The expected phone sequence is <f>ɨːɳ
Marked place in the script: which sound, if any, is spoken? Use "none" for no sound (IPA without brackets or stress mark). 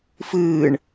f